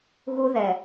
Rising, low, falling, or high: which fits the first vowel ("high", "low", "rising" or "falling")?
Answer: high